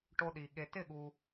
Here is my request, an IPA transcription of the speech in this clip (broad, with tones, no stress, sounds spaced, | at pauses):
ʈ o˦ ɗ i˨ ɠ e˨ t ɪ˥˩ ɠ u˨